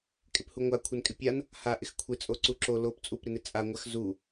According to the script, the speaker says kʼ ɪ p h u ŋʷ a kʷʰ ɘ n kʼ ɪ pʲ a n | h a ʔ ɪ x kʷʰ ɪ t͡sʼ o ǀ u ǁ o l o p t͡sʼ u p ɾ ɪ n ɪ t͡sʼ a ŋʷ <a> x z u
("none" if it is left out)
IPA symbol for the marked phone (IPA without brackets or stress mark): a